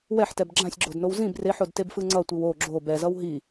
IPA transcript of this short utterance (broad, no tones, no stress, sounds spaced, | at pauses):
w ɛ ħ t ɛ b ɡ͡ǁ ã sʲ ɡ͡ǁ o d n o w z ĩ b r e ħ o d t e b f ɯ ŋ͡ǀ ʌ tʷ i w o ɡ͡ǁ o b ɛ z ʌ w ɦ i